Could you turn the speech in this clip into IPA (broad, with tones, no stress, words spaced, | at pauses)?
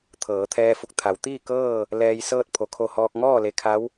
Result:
t̪ʰɤː˩˧t̪ʰɛː˧fu˧˩k̚ t̪ʰa˩˧wt̪iː˥˨kɤː˥˨ | lɛː˧jsɤː˥˨t̚ pʰo˩˧kʰo˧˩hɔː˧k̚ ŋɔː˥˨le˧˩ kʰa˧˥w